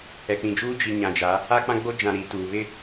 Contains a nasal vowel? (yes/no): yes